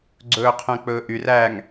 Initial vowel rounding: rounded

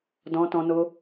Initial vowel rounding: rounded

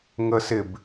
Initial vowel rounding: unrounded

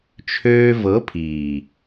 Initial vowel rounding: rounded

